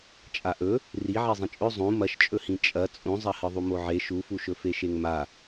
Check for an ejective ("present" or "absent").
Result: present